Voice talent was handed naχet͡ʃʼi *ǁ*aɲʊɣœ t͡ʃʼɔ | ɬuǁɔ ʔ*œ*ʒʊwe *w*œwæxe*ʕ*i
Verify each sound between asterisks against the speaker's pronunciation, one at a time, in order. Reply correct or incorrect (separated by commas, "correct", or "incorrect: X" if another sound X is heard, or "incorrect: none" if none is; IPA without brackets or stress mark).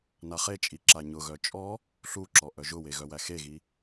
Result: correct, correct, incorrect: ɣ, incorrect: ɣ